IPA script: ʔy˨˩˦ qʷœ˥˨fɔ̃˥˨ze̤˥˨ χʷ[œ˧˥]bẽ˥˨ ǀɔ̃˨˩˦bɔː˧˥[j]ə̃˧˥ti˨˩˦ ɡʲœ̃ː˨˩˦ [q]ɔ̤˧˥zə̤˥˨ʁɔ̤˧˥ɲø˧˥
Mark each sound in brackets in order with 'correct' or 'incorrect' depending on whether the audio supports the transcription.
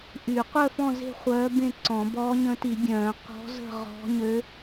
incorrect: œː˧˥, incorrect: ɲ, correct

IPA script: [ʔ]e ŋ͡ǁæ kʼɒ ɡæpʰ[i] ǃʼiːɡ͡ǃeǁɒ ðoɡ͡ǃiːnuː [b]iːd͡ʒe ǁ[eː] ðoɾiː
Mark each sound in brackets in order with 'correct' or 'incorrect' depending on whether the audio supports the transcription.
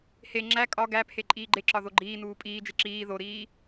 incorrect: h, incorrect: e, incorrect: pʼ, incorrect: iː

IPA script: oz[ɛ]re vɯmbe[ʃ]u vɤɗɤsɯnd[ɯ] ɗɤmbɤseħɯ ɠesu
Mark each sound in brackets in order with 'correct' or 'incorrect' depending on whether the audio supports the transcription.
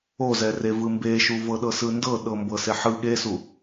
correct, correct, incorrect: ɤ

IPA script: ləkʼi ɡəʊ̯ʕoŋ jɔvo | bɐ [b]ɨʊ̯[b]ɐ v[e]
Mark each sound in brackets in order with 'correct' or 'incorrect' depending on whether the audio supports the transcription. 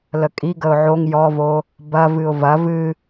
incorrect: v, incorrect: v, incorrect: ɨ

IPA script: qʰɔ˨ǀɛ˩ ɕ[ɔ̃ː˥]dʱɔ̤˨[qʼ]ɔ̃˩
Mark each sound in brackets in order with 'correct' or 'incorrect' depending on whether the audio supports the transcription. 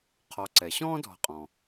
correct, correct

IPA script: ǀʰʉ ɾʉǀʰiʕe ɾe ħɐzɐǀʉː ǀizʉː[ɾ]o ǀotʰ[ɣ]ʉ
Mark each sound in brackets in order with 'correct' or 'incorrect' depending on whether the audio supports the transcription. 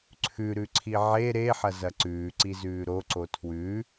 correct, incorrect: w

